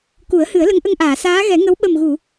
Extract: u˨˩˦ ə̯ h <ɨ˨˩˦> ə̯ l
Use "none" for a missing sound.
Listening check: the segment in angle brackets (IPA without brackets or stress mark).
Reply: ɨ˨˩˦